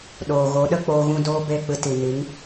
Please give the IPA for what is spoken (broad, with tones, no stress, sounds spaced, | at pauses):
ɗ oː˨ ɣ o˨˦ ɗ ə˦ k͡p oː˧ ɣ ũ˧ d oː˦ b e˦˨ k͡p ɨ˧ t i˨ n i˨˦ ŋ